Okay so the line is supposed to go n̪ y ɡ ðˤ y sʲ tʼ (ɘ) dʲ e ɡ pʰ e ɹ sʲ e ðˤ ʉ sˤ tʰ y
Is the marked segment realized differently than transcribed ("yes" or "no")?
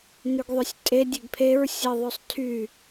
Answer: yes